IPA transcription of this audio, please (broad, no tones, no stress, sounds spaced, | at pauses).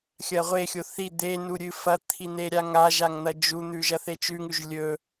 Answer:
xʲ ɐ ʁʷ e xʲ o θ i d̪ e n u ɾʲ ɨ f ɐ t̪ʰ i n̪ e ɾʲ a ŋ a ʒ a ŋ n̪ ɐ d͡ʒ u n̪ ʉ ʒ ɐ θ e t͡ʃ ʉ ŋ ʉ ʒ lʲ ɵ